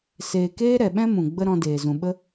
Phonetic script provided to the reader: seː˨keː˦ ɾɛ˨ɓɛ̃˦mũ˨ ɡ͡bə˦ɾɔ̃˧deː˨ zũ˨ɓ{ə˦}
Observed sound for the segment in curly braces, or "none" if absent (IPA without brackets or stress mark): ə˦